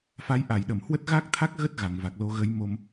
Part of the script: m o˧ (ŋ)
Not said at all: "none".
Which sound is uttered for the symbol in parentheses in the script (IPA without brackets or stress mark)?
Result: m